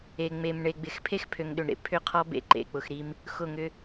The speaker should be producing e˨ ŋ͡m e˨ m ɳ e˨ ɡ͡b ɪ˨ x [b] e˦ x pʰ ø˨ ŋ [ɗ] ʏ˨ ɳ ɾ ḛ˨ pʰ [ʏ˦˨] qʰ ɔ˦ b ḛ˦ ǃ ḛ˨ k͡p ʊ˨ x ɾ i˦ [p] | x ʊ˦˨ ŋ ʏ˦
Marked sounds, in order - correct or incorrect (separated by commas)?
incorrect, correct, correct, incorrect